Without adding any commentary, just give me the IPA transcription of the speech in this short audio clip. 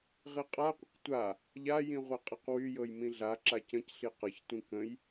ʁiqʼaqʷə̃q tʷa | ʎajĩ ʁʷaqʼeqwyjɤj mĩɮaǁa cə̃cɬi qɤçtʷĩ kə̃j

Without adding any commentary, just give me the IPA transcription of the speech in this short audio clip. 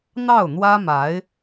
n̪ɑ˥˩ʊ̯n̪wä˥ma˧˥ɪ̯

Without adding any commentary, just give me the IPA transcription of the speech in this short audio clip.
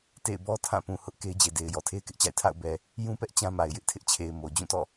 tḛ˦˨ɪ̯ bɔ˦ tʰã˦˨pũ˨ hʊ˦ʔ ke˦ɪ̯d͡ʑe˨de˨ɪ̯ jɔ˨tʰe˦ɪ̯kɪ˦ʔt͡ɕa̰˦˨ɪ̯ tʰa̰˦˨ʊ̯ bɛ˨ | jũ˦pɛ˦ʔ t͡ɕã˦ma˨ɪ̯jɪ˦ʔ tʰɪ˦ʔt͡ɕʰe˨ɪ̯ mo˨ d͡ʑũ˦˨tɔ̰˦˨

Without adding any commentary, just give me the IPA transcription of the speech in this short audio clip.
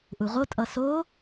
ʔuʁotʼʌ so

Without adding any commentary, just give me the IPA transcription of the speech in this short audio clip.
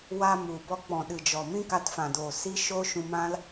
wa˧mu˨bɔ˧ k͡pɔ̃˨ɗɨ˨d͡ʒɔ˨ mĩ˦ka˧tfã˨doː˨ si˦ʃo˦ ʃũ˧mã˦l

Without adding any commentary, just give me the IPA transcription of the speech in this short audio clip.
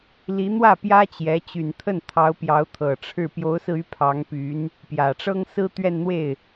li˧˥n̪wä˥˩ pjä˥t͡ɕjɛ˧˥ t͡ɕy˨˩nt̪ʰə˥˩n t̪ʰɑ˧˥ʊ̯pjɑ˧˥ʊ̯t̪ʰɤ˨˩ ʈ͡ʂʰɻ̩˥˩ pjo˧˥ʊ̯sɹ̩˧ y˥pʰɑ˧˥ŋpy˧˥n | pjä˨˩ʈ͡ʂɤ˥ŋ sɹ̩˥ t̪ɥɛ˥˧nn̪we˥˩ɪ̯

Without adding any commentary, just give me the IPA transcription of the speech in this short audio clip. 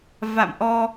va̰˧˨mʔɔ˧

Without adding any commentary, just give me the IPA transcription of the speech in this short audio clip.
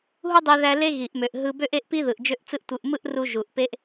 ɦu˥dˤe˧ðæ˧ le˥ɣi˩ʔmø˩ʔ ɦɯ˧ bø˥ʔe˥ʔpi˥ðɯ˩ʔ d͡ʒø˥ʔt͡sɯ˥ʔtʷɯ˧ʔ mɯ˥ʔru˧ ʒu˩ʔ pe˥ʔ

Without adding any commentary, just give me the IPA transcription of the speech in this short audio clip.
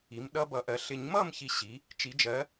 i˩˥mɗʌ˧˥bʌ˨˩˦ʔɜ˩˥ ɬɪ˨˩˦ɲmʌ˥˨mçi˨ ɕi˩˥ | t͡ʃi˨˩˦d͡ʒɜ˩˥

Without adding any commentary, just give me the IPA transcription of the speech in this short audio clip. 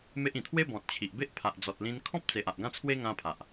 me˦ʔĩ˨˩ t̪ʰwe˦ bɔ̃˨t̚t͡ɕʰi˨ʔ be˦ʔpʰa˨ʔd͡zɔ˨t̚lĩ˧n kʰɔ̃˦p̚t͡se˨ʔ a˨ʔɡã˦t͡sʰwe˦ ŋã˧pʰa˨ʔ

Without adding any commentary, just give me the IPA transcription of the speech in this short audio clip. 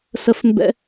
sə˦˥fmbɛ̰˦˥

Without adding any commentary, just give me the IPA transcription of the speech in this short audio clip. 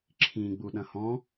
ǁʰĩ ɡ͡buɗɐ̃hɔ̃

